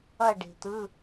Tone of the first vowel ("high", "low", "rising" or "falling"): falling